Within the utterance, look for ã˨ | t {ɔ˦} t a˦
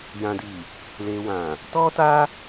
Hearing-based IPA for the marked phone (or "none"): ɔ˦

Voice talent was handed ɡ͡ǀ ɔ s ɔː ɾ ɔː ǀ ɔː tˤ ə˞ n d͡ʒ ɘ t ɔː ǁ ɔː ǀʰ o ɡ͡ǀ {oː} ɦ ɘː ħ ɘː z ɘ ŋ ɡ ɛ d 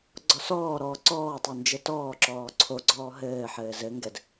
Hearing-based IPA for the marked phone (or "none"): ɔː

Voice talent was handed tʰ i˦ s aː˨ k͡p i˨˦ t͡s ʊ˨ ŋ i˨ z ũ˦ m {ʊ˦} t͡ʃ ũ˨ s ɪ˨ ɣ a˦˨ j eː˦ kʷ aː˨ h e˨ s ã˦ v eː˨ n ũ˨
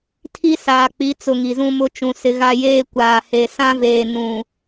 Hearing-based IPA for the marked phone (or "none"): ʊ˦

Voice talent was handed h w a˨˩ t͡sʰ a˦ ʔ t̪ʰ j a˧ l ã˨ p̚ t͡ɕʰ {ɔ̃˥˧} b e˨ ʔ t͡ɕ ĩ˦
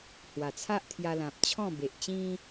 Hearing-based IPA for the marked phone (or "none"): ɔ̃˥˧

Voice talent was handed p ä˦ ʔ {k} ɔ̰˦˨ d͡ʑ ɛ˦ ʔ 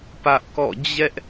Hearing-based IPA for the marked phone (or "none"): k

